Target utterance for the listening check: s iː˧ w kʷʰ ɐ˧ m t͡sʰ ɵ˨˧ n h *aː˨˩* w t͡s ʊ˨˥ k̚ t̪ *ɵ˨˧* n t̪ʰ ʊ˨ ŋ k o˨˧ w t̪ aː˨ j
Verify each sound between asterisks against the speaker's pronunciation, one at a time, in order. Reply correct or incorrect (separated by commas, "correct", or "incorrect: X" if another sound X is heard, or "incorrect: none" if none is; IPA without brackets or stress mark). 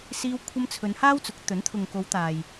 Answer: incorrect: aː˥, incorrect: ɵ˨˥